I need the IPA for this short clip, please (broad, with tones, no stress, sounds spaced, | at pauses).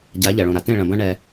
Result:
ɟ a˨˦ ʎ ɐ˨ ɭ õ˨ ɾ a˨ t ẽ˦˨ ɭ ɐ̃˨ b ɐ̃˦ ɳ ɛ˦